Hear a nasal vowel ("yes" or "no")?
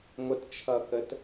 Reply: no